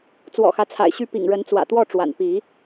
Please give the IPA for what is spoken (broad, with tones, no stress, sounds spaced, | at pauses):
t͡s w ɔ̰˨˩ x ä˦ t͡sʰ a̰˨˩ ɪ̯ ɕ y˥˨ p ḭ˨˩ ŋ ɻ ə˨˦ n t͡s w ä̰˨˩ t̪ w ɔ˥˨ ʈ͡ʂ w a̰˨˩ n p i˨˦